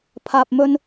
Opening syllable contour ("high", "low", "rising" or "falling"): low